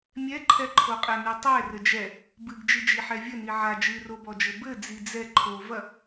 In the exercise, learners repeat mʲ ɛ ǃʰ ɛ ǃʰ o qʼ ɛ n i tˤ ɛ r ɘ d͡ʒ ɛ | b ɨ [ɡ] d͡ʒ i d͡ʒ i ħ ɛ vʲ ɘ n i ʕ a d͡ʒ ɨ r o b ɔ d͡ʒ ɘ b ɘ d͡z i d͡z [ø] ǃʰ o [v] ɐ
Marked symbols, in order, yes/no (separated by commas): yes, no, yes